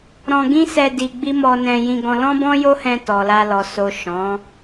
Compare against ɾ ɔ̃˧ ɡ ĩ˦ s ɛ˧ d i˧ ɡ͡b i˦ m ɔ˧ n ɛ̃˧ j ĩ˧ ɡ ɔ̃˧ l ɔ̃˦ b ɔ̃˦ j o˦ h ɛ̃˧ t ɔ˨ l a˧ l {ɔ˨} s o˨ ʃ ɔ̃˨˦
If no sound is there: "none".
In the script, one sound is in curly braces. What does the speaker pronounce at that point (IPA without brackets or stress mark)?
ɔ˨